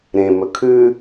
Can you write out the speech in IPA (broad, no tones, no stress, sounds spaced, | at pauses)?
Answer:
ɾ ẽ m ɵ kʰ ʉ